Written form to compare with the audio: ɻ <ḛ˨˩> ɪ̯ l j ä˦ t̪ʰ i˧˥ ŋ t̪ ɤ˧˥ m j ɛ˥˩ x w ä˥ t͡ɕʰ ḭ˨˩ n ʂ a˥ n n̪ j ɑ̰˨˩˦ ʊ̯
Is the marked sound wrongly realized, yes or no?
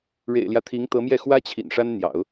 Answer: no